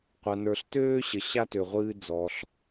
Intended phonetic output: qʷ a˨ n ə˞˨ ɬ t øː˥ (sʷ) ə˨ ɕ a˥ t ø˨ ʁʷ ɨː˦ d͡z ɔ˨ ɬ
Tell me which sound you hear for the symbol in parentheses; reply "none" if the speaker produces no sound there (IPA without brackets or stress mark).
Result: ɕ